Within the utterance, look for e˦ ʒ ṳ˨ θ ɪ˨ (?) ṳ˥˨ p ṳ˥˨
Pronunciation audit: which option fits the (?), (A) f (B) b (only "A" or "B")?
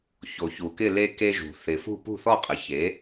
A